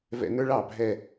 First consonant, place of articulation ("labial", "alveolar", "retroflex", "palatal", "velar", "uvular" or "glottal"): labial